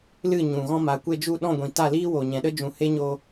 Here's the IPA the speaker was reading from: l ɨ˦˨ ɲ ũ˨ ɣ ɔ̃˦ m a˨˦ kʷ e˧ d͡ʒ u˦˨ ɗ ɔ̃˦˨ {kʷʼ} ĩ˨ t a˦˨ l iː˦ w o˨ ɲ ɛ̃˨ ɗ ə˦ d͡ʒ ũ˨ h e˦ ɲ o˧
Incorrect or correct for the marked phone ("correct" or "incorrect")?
incorrect